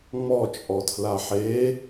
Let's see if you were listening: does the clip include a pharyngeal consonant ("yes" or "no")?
yes